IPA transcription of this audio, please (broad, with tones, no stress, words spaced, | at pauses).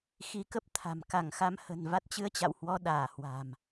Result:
xi˨˦kə˦˥p̚t̪ʰa̤˨˩m ka˧˩ŋxa˧m hə̤˨˩n va˦˥t̚t͡ɕɨ˧ə̯t͡ɕa̰˧˨whwɔ˧ ɗaː˧˩hwa̤˨˩m